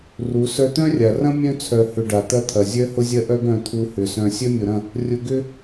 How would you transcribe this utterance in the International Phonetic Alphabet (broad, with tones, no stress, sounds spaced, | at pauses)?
r u˨˦ s œ˧ t̪ œ̃˦ rʲ a˨ r ɐ̃˦ mʲ œ̃˦ t͡sʰ œ˨ h ʏ˨ ɖ a˨ t̪ ɐ˦ t̪ʰ ɐ˨ zʲ œ˦ h ʊ˦ zʲ ɐ˦ ʔ œ˦ ɡ œ̃˧ t̪ʰ u˧ h ʏ˨ s œ̃˨ sʲ œ˦ mʲ ʊ˨ ɾ ɐ̃˦˨ | rʲ ʊ˧ ɡ ʏ˦